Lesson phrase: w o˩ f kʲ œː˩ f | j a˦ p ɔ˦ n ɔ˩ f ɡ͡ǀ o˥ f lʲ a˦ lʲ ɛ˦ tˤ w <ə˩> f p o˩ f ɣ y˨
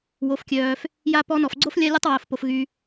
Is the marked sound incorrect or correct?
incorrect